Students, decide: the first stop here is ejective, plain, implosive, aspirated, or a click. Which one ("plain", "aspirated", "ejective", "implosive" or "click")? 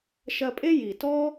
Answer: ejective